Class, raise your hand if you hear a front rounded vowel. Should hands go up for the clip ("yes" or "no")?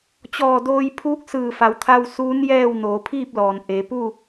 no